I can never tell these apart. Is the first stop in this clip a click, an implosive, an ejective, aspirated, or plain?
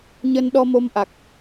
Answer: implosive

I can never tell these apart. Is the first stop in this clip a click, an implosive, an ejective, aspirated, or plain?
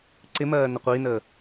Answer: click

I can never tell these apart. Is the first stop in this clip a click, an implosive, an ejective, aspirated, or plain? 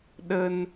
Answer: implosive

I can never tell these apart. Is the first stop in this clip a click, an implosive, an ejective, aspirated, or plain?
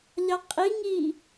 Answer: ejective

